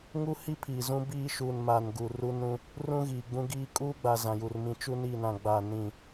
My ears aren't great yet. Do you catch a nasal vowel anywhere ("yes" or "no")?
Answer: yes